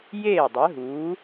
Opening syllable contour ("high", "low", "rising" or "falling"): falling